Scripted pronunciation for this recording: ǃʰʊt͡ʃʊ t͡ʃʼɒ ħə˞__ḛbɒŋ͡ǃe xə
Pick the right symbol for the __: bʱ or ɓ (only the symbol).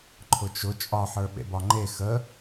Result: ɓ